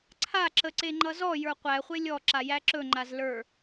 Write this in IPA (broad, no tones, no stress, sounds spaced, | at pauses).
ǀʰ a ǁ ə ǀ e ŋ͡ǃ ʌ z ɔ j ə˞ qʷ æ χʷ e lʲ ɔ ǁ a j æ ǁ ɵ ŋ͡ǃ a z l ə˞